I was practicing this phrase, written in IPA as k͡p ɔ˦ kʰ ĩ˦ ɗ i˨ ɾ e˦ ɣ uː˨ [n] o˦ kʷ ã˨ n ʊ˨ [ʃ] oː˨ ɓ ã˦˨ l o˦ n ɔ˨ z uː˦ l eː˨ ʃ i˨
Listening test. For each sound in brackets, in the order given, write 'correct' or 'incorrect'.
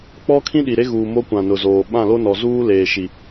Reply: incorrect, incorrect

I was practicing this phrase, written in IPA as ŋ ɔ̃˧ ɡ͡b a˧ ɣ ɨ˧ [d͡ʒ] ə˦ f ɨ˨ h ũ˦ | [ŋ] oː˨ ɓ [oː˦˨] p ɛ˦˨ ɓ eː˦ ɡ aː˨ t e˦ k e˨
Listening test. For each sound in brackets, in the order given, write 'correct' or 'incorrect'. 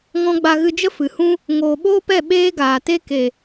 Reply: correct, correct, incorrect

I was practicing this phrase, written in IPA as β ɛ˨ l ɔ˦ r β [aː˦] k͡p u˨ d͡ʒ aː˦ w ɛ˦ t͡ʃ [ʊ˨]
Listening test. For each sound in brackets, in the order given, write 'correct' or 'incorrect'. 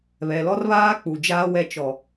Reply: correct, incorrect

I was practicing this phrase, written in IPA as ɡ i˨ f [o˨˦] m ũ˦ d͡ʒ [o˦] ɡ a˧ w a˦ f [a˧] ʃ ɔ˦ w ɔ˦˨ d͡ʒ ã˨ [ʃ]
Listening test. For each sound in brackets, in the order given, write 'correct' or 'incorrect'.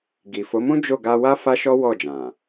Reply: correct, incorrect, incorrect, incorrect

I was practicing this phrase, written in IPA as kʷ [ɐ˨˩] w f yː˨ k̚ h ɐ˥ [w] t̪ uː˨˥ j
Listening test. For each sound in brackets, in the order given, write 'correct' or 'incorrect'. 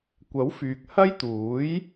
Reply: incorrect, incorrect

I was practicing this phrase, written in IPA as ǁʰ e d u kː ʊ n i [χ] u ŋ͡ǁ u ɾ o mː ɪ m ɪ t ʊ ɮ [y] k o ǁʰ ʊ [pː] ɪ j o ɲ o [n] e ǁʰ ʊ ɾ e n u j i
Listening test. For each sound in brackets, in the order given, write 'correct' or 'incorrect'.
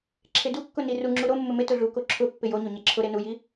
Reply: incorrect, incorrect, correct, incorrect

